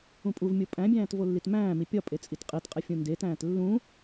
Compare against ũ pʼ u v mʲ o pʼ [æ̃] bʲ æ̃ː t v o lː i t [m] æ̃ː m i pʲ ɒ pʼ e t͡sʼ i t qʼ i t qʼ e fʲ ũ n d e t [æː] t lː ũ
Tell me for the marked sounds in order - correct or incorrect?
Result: correct, correct, incorrect: æ̃ː

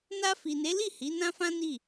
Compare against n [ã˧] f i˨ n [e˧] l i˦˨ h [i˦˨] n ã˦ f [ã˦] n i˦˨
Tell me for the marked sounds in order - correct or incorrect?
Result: incorrect: a˧, incorrect: e˨˦, incorrect: i˨˦, correct

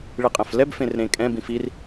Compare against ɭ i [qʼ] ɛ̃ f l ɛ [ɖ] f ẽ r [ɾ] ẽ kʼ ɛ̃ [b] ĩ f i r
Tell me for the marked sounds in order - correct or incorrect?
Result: correct, incorrect: b, correct, correct

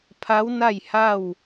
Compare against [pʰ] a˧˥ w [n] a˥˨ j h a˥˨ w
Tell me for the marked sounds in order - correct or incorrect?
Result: correct, correct

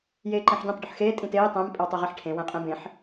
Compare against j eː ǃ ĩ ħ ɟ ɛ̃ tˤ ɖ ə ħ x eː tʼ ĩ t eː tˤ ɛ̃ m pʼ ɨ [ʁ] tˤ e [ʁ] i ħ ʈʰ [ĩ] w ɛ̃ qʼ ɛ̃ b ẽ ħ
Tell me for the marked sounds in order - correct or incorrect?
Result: incorrect: w, correct, incorrect: ẽ

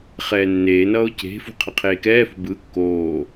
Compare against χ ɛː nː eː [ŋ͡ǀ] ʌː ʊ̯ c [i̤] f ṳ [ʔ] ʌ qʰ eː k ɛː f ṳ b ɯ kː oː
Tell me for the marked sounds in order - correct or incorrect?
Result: incorrect: n, incorrect: e̤, incorrect: qʰ

